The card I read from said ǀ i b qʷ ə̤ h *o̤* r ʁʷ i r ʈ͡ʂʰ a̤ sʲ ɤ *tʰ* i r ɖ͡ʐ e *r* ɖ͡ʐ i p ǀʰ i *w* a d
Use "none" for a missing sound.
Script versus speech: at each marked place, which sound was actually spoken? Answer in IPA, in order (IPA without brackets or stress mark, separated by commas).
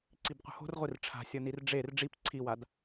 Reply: o̤, n, r, w